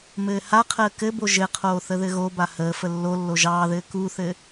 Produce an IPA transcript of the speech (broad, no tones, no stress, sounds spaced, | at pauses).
m ɘː h a qʰ əː k ɘ b o ʒ ɘ qʰ oː θ ə ð ɘ ɣ o b a h əː f ə lː o lː o ʒ ɑː ð ɘː k u θ ɘ